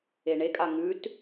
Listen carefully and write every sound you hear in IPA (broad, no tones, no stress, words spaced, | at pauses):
eɳekʼa ŋʉt